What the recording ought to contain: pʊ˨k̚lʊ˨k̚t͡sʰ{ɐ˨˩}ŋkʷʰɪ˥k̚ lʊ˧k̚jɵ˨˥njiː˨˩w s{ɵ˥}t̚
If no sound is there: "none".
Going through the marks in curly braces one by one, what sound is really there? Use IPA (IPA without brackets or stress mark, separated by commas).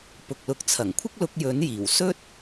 ɐ˨˩, ɵ˥